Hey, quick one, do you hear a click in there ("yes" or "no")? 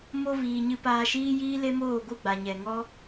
no